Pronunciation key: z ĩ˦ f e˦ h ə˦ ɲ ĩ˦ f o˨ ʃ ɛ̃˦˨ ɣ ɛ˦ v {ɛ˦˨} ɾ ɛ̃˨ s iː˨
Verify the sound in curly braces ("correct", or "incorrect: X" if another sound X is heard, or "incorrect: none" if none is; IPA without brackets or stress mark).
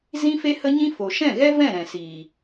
incorrect: ɛ̃˦˨